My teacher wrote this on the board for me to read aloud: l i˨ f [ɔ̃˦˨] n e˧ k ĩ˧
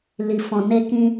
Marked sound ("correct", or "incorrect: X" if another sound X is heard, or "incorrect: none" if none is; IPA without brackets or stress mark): incorrect: ɔ̃˨